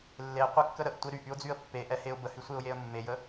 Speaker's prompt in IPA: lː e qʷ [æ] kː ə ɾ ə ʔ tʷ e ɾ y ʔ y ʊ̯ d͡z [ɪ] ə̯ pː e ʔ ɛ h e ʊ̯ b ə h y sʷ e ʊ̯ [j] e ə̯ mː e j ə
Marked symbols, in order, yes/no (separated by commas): no, no, yes